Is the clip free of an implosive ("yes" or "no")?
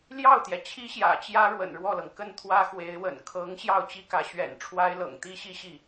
yes